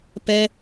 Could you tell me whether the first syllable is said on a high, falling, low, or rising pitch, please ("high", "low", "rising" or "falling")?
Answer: high